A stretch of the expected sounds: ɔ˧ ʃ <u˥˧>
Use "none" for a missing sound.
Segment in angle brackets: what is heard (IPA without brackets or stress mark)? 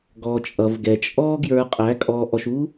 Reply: u˥